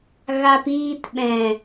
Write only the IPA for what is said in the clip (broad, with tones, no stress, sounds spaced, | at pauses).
ɣ a˧ p iː˧ t ɓ ɛ̃˨